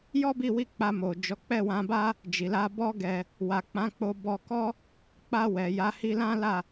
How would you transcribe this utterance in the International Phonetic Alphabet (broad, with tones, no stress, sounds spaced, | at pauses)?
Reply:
j ɔ˦ b i˦˨ w i˧ k͡p a˧ m o˨ d͡ʒ ɔ˨˦ k͡p ɛ˦˨ w ã˧ b a˦ | d͡ʒ i˨ l a˧ b ɔ˦ ɡ ɛ˧ | w a˨ k͡p ã˨˦ k͡p o˧ b ɔ˧ k ɔ˦ | k͡p a˧ w ɛ˨ j a˨˦ h i˧ l ã˦ l a˦˨